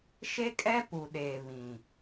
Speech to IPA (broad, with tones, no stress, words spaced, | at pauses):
ʃe˦kʼɛ˦ pu˨ɗeː˨ βĩ˨